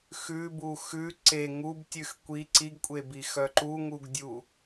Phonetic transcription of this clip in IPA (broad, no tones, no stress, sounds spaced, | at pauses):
x ʉ b u x ʉ ǀ e ŋ u b tʲ ʉ x kʷ i ǀ i ɡ kʷʼ e b i x œ ǃ u ŋ u ɡ dʲ u